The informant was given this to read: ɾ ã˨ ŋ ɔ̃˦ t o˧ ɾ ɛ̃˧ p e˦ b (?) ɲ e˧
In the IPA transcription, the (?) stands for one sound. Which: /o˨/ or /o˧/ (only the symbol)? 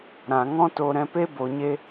o˨